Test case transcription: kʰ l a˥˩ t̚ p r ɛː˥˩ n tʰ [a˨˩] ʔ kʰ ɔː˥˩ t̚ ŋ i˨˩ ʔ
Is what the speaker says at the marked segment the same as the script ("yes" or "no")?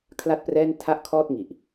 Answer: no